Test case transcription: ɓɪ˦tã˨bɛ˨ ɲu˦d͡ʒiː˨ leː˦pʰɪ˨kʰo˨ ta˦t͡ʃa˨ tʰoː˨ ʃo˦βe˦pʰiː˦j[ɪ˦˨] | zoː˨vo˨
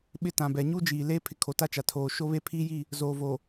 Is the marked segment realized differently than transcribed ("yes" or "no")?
yes